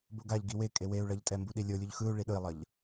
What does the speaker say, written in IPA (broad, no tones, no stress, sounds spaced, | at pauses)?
b o ɡ a ʎ ɡ i w e kʼ e w e u̯ ɭ ʌ ʎ tʼ ɛ m b u ɗ i lʲ o lʲ u ʎ x ɯ u̯ ɭ i ɗ ɯ i̯ lˠ ʌ ʎ